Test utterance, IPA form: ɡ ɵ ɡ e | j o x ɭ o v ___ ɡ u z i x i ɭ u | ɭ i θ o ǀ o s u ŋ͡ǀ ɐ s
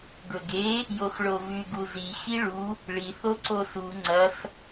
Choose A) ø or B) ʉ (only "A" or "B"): B